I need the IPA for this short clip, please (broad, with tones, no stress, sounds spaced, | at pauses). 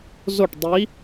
z o˥˩ ʈ dˤ i˧˥